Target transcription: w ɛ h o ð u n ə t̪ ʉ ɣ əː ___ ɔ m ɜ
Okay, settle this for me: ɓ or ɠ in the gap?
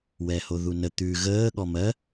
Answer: ɠ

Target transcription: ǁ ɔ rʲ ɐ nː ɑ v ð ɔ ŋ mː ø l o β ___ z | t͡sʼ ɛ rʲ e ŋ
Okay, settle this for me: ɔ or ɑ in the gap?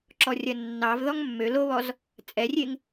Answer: ɔ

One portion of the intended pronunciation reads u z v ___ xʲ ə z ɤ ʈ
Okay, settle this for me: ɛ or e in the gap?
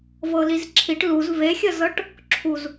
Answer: e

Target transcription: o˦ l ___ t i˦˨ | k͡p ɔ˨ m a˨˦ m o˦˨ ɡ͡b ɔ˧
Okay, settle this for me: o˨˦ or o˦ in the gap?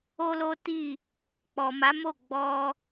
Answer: o˦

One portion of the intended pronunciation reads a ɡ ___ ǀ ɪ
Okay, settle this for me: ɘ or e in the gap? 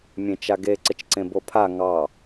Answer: e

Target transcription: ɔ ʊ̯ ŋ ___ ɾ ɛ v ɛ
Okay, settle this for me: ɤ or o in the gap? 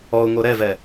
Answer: o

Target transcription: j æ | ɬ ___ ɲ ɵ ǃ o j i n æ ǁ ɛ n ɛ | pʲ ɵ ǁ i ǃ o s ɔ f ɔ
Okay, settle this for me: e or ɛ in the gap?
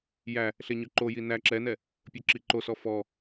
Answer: e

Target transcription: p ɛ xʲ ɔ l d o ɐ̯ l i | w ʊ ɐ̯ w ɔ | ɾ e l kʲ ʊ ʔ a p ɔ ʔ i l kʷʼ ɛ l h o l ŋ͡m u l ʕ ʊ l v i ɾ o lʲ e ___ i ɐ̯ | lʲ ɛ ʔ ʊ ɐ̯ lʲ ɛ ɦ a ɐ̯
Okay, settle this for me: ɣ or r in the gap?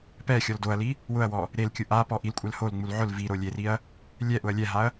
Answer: r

